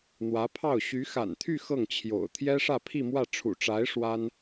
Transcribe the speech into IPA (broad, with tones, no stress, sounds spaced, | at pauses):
n̪ w ä˧˥ pʰ ɑ˥˩ ʊ̯ ɕ y˧˥ x a̰˨˩ n t̪ʰ y˥˧ x ɤ˥˩ ŋ t͡ɕʰ j o̰˨˩ ʊ̯ t̪ʰ j ɛ˥ ʂ ä˥˧ pʰ i˥˧ m w ä˥˩ ʈ͡ʂʰ ṵ˨˩ ʈ͡ʂ a˧˥ ɪ̯ ʂ w a˥ n